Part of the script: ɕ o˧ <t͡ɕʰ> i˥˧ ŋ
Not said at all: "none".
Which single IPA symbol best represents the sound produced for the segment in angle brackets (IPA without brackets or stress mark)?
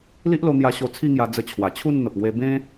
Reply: t͡sʰ